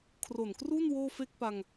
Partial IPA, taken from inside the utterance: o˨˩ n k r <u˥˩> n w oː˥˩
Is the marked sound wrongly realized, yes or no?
no